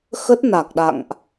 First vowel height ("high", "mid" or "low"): mid